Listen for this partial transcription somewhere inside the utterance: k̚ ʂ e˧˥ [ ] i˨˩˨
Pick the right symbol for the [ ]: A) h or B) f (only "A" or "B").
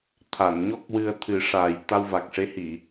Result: A